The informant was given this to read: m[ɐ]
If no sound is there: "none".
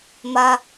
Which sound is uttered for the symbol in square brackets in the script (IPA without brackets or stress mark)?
ɐ